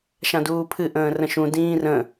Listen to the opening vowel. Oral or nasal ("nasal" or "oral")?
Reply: nasal